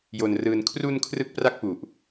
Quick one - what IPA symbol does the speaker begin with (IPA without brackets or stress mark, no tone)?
j